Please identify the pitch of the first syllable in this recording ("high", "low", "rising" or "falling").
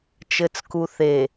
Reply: low